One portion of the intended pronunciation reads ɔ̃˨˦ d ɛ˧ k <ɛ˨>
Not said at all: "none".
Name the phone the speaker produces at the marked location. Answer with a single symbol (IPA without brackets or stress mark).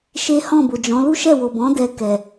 ɛ˨